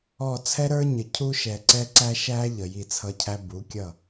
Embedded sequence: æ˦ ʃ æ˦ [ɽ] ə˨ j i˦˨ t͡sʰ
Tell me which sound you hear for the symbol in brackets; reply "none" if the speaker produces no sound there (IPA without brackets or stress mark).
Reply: ʎ